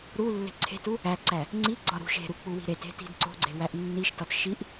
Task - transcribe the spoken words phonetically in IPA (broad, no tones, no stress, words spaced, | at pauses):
ɾulːe̤ ǀʰe̤tu | æǀæ | ŋ͡ǀi ɡ͡ǀɒɾṳʃ e̤ɾu k͡puwi̤ɾet e̤ti̤dǀo̤ɡ͡ǀe̤ wæʔnːiʃ tɒtʃiʔ